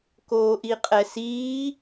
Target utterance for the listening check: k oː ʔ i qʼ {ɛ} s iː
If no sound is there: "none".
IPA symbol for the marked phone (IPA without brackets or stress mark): ɛ